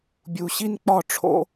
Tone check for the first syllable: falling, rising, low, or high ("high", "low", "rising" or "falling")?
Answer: low